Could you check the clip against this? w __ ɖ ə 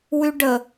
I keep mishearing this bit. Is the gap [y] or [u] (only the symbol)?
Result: y